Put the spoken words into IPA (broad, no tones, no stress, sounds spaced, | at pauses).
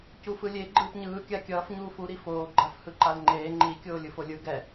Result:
c u f ɯ lʲ e ɡ͡ǃ ɯː p ɲ ɯː kʲ a kʲ ʌː f ɲ uː f u ɾ i f oː ɡ͡ǃ a f h ɯ ǃ a l ŋ͡ǃ eː ŋ͡ǃ i kʲ oː lʲ ɯ f o lʲ ɯ ɡ ɛ